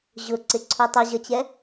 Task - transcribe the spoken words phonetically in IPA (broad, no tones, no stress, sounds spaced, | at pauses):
ʑ ʊ ǀ ɪ ǀʰ u tˤ i ʑ ʌ t͡ɕ ɛ